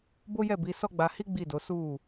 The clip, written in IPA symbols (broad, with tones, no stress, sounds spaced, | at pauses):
b o˦ j ɛ˦˨ b i˨˦ s ɔ˦ ɡ͡b a˧ h i˦ ɡ͡b i˦˨ d o˨˦ s u˦˨